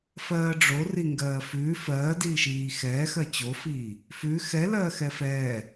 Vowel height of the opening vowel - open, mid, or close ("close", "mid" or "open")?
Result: mid